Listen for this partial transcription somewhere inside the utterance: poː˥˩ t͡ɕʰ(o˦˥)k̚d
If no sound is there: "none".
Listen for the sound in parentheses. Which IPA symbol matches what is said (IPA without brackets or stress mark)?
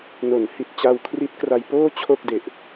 o˥˩